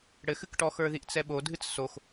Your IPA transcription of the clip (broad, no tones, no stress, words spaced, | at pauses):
ɽɘxɨkʈɔxə˞ ðiʔt͡sɛɓo dʱɨt͡ssox